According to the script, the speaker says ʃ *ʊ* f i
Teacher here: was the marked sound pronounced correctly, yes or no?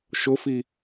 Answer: yes